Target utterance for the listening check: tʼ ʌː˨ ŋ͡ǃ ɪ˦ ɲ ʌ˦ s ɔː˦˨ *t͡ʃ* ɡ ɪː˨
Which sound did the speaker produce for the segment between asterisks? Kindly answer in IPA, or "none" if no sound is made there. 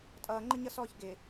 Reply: ç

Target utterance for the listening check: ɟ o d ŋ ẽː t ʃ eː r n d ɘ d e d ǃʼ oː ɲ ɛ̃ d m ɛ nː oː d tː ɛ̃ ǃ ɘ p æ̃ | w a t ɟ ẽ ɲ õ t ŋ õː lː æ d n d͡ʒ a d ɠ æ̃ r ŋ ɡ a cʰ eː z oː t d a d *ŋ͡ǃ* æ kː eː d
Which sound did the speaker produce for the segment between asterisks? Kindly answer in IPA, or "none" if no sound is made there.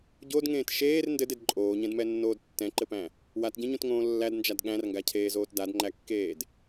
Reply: ŋ͡ǃ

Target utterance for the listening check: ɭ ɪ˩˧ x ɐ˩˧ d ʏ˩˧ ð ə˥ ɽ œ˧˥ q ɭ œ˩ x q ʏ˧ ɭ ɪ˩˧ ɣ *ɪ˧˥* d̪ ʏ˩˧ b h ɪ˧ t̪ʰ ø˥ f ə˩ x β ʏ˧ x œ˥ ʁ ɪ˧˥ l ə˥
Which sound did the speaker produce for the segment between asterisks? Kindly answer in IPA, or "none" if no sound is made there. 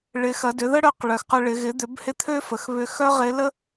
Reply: ɪ˩˧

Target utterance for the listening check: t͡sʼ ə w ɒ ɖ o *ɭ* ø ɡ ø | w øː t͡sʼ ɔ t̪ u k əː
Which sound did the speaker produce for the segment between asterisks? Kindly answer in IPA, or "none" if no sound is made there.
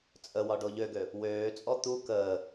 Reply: ʎ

